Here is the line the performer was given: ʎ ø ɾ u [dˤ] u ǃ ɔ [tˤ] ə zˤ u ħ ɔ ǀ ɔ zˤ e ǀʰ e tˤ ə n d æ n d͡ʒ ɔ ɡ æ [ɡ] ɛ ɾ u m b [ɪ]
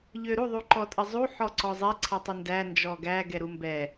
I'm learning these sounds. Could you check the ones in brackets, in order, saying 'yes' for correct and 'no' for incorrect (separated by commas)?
no, no, yes, no